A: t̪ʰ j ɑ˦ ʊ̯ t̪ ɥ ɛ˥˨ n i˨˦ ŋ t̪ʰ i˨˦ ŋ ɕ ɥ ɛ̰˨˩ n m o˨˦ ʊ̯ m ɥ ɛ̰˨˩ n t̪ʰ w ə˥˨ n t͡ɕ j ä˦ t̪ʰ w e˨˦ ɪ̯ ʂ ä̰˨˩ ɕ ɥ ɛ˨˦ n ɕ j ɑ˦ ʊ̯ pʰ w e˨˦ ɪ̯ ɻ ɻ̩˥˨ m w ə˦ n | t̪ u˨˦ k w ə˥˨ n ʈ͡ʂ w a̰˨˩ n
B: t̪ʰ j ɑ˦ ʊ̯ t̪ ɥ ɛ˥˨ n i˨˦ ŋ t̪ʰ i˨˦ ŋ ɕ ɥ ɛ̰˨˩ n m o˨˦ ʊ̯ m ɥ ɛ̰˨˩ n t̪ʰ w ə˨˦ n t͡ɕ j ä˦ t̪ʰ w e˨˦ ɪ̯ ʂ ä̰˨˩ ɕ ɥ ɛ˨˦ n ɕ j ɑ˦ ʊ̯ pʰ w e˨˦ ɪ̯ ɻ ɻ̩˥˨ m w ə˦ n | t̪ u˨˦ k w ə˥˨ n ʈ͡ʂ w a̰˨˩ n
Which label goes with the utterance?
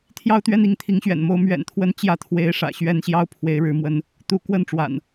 B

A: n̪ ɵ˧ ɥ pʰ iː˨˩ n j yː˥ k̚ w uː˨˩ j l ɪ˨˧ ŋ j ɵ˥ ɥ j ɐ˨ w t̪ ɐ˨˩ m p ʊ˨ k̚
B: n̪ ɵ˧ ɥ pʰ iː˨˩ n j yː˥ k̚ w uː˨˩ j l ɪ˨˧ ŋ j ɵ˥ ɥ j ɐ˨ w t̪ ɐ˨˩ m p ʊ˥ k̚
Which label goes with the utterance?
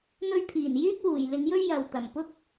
B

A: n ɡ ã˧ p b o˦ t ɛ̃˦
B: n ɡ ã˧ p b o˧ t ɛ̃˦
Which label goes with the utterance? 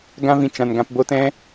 A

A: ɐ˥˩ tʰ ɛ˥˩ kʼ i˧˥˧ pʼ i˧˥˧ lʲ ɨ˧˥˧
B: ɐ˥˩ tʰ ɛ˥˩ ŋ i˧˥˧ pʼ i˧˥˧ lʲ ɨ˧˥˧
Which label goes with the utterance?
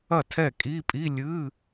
A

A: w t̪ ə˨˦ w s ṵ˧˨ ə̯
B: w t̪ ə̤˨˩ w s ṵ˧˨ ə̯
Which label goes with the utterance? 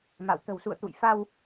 B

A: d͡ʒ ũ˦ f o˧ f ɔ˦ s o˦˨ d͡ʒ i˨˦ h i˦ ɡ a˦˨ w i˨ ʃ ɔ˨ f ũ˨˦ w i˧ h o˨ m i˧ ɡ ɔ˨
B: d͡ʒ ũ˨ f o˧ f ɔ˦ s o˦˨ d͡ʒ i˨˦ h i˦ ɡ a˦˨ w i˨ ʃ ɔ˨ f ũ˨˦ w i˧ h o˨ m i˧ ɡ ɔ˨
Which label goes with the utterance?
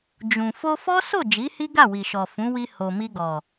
B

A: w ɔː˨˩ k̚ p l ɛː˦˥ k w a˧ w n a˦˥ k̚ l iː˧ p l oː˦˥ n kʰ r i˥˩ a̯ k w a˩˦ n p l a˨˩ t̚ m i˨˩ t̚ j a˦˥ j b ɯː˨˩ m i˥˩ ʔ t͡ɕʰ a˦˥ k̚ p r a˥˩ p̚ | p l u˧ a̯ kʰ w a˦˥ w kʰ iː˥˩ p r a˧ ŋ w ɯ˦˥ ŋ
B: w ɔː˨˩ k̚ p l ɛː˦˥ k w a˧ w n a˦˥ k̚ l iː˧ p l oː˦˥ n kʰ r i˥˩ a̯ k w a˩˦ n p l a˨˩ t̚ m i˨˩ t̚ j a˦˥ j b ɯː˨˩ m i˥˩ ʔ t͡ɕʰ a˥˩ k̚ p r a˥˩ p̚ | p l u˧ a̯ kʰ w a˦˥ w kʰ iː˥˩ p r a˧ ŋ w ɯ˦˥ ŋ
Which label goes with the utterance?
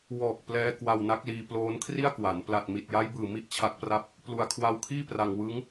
A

